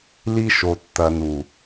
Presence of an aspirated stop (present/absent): absent